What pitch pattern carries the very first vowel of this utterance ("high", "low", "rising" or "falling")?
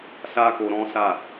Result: high